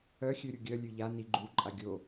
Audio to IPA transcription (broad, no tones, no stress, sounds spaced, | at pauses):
œ xʲ ø ɾʲ u ɡʲ œ lʲ ø ʎ a n i ɡ͡ǃ u ǃʼ a ɡʲ o